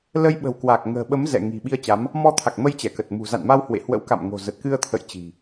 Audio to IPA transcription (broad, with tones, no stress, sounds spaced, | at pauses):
l ə˧ j ɓ ə̤˨˩ w k w a˨˩ k̚ ŋ ə̤ː˨˩ ɓ ə˨˦ m z ɛ̰˧˨ ŋ i̤˨˩ ɓ i˧ ə̯ t͡ɕ a˨˦ m | m ɔ˧ t̪ʰ a˨˩ k̚ m ə˧ j t͡ɕ ɛ˧˩ k ə˨˩ t̚ m ṳ˨˩ z a̰˧˨ n m a˧ w h w ḛ˧˨ h w ə̰˧˥ w k a̰˧˨ m ŋ o̤˨˩ z ə˨˩ t̚ k ɨ˧ ə̯ t̪ʰ ə̰˧˨ j t͡ɕ i̤˨˩